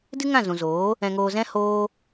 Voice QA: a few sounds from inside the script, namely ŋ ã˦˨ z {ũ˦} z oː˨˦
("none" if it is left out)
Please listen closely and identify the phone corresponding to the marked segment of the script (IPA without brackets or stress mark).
ũ˨